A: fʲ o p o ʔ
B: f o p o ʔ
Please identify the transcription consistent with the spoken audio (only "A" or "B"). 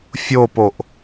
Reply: A